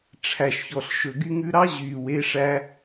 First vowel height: low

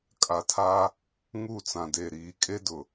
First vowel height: low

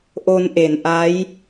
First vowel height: mid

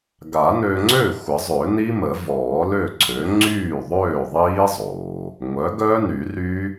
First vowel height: low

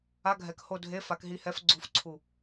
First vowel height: low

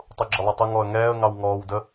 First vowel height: high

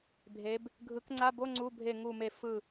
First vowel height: mid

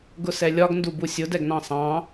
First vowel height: high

